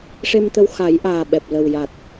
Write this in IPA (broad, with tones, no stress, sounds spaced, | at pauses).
ʂ e˧ m t̪ ə˧ w x a˨˩˦ j ʔ aː˨˩ ɓ ɛ˨˩ p̚ l ə˨˩ w j a˨˩ t̚